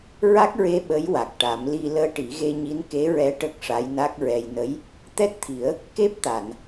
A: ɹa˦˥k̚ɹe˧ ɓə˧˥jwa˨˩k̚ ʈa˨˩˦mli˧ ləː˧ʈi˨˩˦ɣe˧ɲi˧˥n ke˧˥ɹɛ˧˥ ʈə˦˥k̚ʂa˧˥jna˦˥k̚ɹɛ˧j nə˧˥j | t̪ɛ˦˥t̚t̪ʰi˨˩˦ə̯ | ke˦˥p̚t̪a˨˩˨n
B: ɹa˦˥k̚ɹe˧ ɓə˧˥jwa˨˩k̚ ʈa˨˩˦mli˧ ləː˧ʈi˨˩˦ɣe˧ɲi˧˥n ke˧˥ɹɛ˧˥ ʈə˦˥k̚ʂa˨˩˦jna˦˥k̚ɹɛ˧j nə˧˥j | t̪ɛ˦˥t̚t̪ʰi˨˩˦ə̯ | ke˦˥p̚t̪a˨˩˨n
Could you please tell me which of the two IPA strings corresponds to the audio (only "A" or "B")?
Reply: A